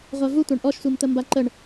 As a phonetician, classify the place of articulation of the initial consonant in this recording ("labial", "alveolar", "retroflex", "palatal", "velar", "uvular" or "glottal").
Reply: uvular